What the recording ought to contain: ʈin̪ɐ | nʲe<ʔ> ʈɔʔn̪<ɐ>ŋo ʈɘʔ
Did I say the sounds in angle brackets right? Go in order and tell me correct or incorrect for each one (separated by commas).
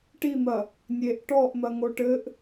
correct, correct